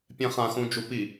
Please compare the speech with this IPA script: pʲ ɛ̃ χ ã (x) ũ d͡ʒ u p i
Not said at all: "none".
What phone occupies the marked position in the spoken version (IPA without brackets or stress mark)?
x